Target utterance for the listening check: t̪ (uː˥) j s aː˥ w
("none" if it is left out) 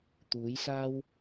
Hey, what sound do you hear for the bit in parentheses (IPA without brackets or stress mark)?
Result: uː˨˥